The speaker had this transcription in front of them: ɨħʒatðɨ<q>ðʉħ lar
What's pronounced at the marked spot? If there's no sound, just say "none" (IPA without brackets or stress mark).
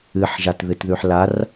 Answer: t